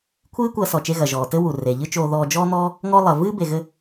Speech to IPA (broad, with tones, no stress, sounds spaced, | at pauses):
kʷʰ ɨː˥ kʷ ɐː˧ s ɔ˩ t͡ʃ e˧ ɣ ɐ˩ ʒ ɔː˩ t ɘ˥ w u˩ r e˩ ʎ ɨ˥ t͡ʃ oː˧ ð ɔː˧ d͡ʒ ɔː˥ n̪ ɔː˥ | ŋ ɔ˥ lˠ ɐ˩ v ɨː˥ b e˩ ɣ ɘ˧